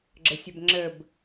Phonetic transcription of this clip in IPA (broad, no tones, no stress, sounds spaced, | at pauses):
ɡ͡ǁ ə sʲ ə b ŋ͡ǁ ə b